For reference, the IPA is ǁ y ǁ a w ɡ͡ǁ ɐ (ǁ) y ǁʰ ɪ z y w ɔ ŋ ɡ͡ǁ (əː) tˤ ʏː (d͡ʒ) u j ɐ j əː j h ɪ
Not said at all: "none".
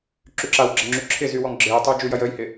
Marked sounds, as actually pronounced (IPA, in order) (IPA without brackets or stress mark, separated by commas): ŋ͡ǁ, ɪː, d͡ʒ